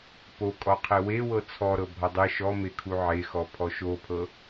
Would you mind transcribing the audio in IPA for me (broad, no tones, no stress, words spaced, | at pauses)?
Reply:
pokʼɔqʰe wewɤ t͡sʰɔɾɤ bʱɔdˤe ʃɔme kʰuʕexɔ pʰɔʃopʰɤ